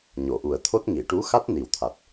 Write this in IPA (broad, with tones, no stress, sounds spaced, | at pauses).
ɲ o˨˩˨ ʔ u˨˩ ə̯ t̪ʰ o˦˥ t̚ ŋ i˨˩˨ ʈ u˧˥ x a˦˥ t̚ n i˨˩ w t̪ʰ a˨˩ t̚